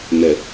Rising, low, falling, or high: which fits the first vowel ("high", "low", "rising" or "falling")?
low